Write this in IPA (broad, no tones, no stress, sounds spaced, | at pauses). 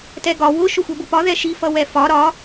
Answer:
t ɛ ɡ ɒ w ʊ ʃ ʊ xʷ ɛ b ʊ p ɒ ð ɛ ʃ i f ʌ w ɛ f ɒ ɾ ɒ